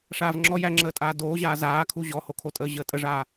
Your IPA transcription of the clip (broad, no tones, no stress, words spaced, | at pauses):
ʂaːvŋ͡ǁɔj æŋ͡ǁəːtʼaː doːʑaː zaːkʰu ʑɔhokʰotʼəː ʑəːtʼəʐaː